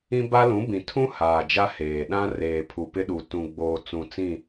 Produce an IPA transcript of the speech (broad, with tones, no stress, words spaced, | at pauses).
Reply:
ĩ˦ba˦lũ˨˦bĩ˨ tʰũ˦ haː˨d͡ʒa˦ heː˨ɗã˦ reː˨pʰu˨pɪ˦ɗu˨ tũ˨ɡ͡boː˨ t͡sũ˨t͡sĩ˦˨